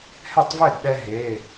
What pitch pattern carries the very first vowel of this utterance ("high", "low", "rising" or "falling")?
falling